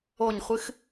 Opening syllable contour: falling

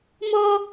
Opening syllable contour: high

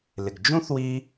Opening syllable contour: low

